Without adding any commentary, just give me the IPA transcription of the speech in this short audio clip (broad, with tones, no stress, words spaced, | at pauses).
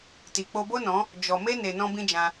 ti˨ k͡po˧bo˦nɔ̃˨˦ | d͡ʒɔ˨me˦ne˨ nɔ̃˦bĩ˦d͡ʒã˧